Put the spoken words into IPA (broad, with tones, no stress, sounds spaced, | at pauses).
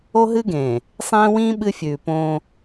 o˦ ɦ ɨ˦ ɡ ẽː˨ | sˤ ẽː˦ w ĩː˦ ɓ ɨ˦ fʲ ʉː˨ p õː˦